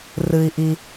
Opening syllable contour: low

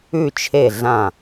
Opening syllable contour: falling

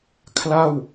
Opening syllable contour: falling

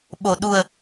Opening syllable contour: low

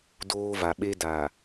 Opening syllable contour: high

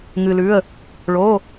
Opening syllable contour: low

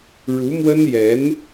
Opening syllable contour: rising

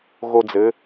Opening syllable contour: high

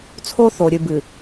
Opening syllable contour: high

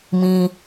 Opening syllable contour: low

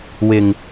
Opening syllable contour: low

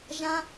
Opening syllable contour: high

